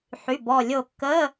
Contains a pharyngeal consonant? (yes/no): yes